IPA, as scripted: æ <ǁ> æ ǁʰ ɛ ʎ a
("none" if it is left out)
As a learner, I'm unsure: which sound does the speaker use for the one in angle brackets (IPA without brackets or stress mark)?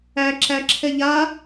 ǁ